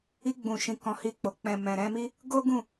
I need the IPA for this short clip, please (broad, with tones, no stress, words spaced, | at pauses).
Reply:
i˧ ɡ͡bũ˨ʃĩ˨ kɔ̃˨˦hi˧k͡po˨ k͡pɛ̃˨mɛ̃˨ɾɛ̃˧mi˦ | ɡo˦ ɡũ˦˨